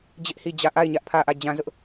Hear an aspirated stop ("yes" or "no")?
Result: yes